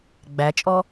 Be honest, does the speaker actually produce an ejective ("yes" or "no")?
yes